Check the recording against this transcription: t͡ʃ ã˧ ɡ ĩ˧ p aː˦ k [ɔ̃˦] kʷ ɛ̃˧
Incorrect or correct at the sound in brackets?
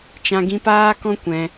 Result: correct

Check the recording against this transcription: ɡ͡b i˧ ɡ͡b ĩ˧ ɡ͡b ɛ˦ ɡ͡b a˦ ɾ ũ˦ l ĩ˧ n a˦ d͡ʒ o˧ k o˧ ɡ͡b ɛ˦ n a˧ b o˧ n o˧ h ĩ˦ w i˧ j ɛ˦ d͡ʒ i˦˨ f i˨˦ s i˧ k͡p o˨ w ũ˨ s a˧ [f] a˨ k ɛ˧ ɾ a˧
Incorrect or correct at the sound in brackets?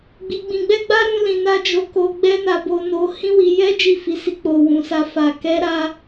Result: correct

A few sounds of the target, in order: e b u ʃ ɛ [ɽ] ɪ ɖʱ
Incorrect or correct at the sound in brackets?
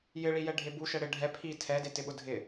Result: correct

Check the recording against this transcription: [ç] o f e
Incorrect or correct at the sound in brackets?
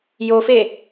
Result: incorrect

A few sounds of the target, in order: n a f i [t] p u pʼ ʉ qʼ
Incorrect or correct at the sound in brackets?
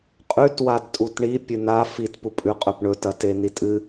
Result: correct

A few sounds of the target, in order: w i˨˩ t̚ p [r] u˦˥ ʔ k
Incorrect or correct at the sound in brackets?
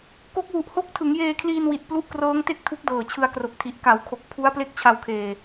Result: incorrect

